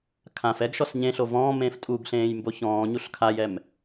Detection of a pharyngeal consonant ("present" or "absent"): absent